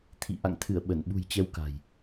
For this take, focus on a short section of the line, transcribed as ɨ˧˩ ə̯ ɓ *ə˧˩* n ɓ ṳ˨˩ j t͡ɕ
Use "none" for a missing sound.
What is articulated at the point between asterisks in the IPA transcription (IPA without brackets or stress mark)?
ə˧˩